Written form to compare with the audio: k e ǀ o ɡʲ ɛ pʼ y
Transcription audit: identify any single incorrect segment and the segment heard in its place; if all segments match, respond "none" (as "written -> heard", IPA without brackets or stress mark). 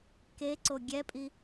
y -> i